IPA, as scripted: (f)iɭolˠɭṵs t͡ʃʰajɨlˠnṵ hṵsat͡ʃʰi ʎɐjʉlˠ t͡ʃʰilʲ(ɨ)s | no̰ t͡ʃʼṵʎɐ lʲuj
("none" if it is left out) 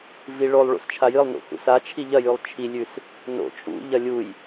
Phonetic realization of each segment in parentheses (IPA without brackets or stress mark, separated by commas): v, ʉ